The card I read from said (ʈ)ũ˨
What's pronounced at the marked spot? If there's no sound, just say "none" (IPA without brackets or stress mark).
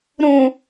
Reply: ɾ